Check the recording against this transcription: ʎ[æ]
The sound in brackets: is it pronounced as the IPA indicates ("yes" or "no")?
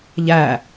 yes